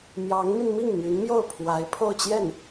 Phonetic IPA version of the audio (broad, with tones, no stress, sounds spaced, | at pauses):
m j ɑ˧˥ ŋ m i˧ n m i˥˩ ŋ m y˧˥ n m j o˥˩ ʊ̯ pʰ w a˧˥ ɪ̯ pʰ o˥˧ ʊ̯ t͡ɕ j ɛ˥˩ n